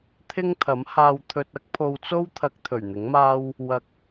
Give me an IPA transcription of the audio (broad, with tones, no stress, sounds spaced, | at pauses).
t̪ʰ ɪ˥ ŋ t̪ʰ ɐ˨˥ m h aː˧ w t̪ʰ ɵ˧ t̚ ɐ˥ k̚ pʰ o˧ w t͡s o˥ w t̪ʰ ɐ˧ k̚ t̪ʰ ɵ˨˩ ɥ n̪ ɪ˨˥ ŋ m aː˥ w | w ɐ˧ k̚